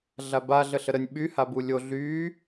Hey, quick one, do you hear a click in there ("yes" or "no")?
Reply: no